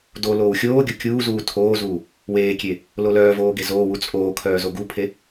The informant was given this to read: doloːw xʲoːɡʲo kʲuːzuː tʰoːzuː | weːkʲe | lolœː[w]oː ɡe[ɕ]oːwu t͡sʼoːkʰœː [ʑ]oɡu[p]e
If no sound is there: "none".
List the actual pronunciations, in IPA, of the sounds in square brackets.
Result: v, z, z, pʰ

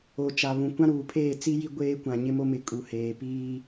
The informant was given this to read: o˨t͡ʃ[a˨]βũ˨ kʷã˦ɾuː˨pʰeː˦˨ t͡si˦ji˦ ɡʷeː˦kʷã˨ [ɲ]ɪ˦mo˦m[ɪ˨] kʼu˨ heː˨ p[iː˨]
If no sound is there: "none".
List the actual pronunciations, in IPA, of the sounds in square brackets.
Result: a˨, ɲ, ɪ˨, iː˦

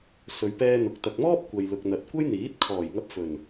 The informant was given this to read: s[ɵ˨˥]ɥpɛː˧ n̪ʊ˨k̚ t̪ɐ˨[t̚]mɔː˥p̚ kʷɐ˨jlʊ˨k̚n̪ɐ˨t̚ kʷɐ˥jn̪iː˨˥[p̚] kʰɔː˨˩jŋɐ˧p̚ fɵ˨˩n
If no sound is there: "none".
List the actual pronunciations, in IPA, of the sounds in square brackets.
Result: ɵ˨, k̚, t̚

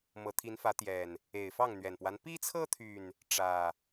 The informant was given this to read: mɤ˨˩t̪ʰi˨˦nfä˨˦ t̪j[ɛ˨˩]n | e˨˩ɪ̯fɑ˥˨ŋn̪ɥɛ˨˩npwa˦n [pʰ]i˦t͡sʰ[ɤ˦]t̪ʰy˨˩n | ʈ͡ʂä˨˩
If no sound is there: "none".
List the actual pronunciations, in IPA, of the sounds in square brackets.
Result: ɛ˨˩, p, ɤ˦

